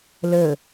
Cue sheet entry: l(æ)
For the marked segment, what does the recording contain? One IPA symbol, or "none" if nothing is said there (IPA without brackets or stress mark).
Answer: ə